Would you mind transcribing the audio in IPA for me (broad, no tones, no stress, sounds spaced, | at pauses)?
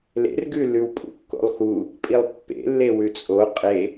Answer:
l ḛ r ɡ ʉ l ʉ w pʼ ṵ kː o̰ lˠ x u | pʼ i lˠ pː ḛ lː e w ʉ t͡sʼ o qʼ e